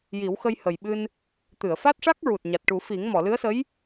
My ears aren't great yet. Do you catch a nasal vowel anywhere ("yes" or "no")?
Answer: no